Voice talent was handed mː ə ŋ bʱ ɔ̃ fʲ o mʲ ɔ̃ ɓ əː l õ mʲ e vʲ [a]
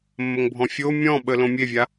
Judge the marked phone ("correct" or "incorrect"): correct